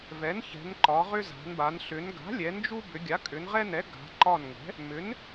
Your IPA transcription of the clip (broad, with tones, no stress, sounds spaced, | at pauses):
v ɛ˩˥ n ç ɛ̤˩˧ n ǃ ɒ˩˧ ʁ ʏ˦ z a̤˩˧ n b a˩˧ n ɬ ʏ˩˧ n ɡ a̤˩˥ lʲ ɛ˩˧ n d͡ʒ u˦ b ʏ˩˧ ɡʲ a˩˥ kʼ ʏ˩˧ n ʁ ɛ˦ n ɛ˩˥ ɡ a̤˩˧ ǃ ɒ˧˩ n ŋ ɛ̤˩˥ | m ʏ˩˥ n